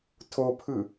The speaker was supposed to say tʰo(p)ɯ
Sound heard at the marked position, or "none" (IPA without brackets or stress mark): pʰ